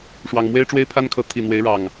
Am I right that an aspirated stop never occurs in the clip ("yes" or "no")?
no